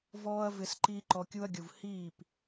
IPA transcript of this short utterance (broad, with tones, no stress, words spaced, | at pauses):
vɔː˦ɐ̯vɪ˧s ǃiː˦ǃɔ˧kʲu˦ɐ̯ɡʲu˨v hiː˦˨p